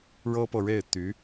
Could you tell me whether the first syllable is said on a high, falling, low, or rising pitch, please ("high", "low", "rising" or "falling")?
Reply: high